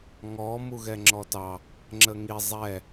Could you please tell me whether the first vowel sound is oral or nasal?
oral